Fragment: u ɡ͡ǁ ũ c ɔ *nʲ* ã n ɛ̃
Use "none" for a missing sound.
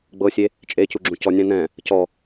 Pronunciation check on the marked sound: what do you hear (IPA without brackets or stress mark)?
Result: nʲ